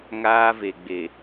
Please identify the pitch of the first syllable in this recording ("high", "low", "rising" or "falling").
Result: high